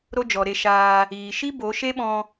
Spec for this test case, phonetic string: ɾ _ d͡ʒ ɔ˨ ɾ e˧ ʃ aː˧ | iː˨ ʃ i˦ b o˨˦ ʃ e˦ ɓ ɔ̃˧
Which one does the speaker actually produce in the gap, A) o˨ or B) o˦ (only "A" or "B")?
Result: B